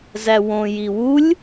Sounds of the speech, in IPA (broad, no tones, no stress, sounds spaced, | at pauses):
z æ w õ j i w u lʲ